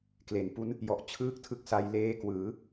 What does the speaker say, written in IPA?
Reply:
k l e˩˦ n p u˦˥ n | j ɔ˨˩ ʔ t͡ɕʰ ɯː˥˩ k̚ tʰ ɯ˥˩ k̚ s a˦˥ j l eː˦˥ k w ɯː˩˦

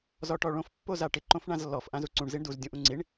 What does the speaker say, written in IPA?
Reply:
z ɔ ʈ ɔ ɭ õ f pː o z a ʈ ɪ ǃ õ f ɳ ã z lː ɔ f ʔ ã z u ǀ ũ ɳ z i ɳ d u z dʲ ũ ʔ ũ ŋ͡ǀ i ɳ

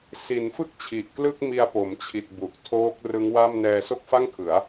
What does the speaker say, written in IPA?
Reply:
s i˩˦ n f ɯ˥˩ k̚ t͡ɕʰ i˨˩ ʔ k l ɯ˥˩ k̚ m i˧ a̯ p o˩˦ m t͡ɕʰ i˨˩ t̚ b u˨˩ ʔ tʰ oː˦˥ k̚ r ɯ˦˥ ŋ w a˥˩ m n ɛː˧ s o˥˩ k̚ f a˥˩ ŋ kʰ ɯ˩˦ a̯

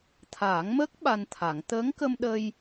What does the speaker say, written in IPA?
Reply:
t̪ʰ aː˨˩˦ ŋ m əː˦˥ k̚ ɓ a˧ n t̪ʰ a˨˩˦ ŋ t̪ əː˧˥ ŋ k ə˧ m ɗ ə˧ j

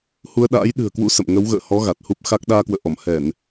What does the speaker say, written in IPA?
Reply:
h u˧ ə̯ ɗ a̰ː˧˥ j ɗ ɨ̤˨˩ ə̯ k w ṵ˧˥ s ə̰˧˨ m ŋ ə˨˦ w ɣ ə̰ː˧˨ h ɔ˨˦ ɣ a˨˩ t̚ h u˦˥ p̚ x a˦˥ k̚ ɗ aː˧ k w ə̰ː˧˨ ʔ ɔ˧˩ m h ɛ˧˩˨ n

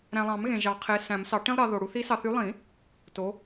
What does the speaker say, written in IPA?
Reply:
ɾ æ̃˨ lˠ ɑ̃˨˩˦ m ɣ ẽ˨ ʒ ɑ˨˩˦ qʰ e˨˦ s æ̃˨˩˦ m s ɑ˨˦ ʈ ĩ˥ lˠ ɾ ɑ˨˦ ð o˨ ɽ u˨˦ θ i˨˦ s ɑ˨ θ y˨˦ lˠ ĩ˨˩˦ | t o˨˦

